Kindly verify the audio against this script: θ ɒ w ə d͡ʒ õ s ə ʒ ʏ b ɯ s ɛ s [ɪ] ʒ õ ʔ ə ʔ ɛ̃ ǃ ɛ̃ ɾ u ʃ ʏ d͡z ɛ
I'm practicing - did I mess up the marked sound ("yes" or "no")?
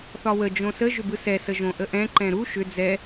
yes